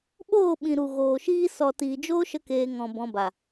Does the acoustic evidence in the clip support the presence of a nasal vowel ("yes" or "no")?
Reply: yes